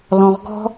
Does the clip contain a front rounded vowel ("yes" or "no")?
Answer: no